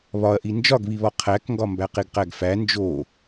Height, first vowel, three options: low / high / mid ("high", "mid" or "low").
low